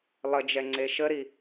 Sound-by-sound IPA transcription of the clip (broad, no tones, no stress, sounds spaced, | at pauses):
lˠ ə d͡ʒ ɛ ŋ͡ǀ e ʃ ə ɾ i